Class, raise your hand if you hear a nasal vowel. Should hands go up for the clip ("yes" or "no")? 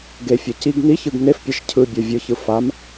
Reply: no